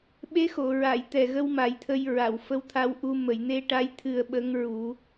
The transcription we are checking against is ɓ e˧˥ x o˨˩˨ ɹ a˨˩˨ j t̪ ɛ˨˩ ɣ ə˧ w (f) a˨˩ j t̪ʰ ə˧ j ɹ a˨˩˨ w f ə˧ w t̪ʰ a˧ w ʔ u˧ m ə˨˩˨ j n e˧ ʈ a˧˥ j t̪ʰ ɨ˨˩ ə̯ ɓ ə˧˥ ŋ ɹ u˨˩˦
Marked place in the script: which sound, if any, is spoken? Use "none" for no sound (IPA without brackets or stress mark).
m